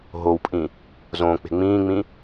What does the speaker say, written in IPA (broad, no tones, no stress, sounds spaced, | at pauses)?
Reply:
ɦ o w pʼ ĩ | z õ k͡p e̤ ŋ͡m ĩː ŋ͡m ĩ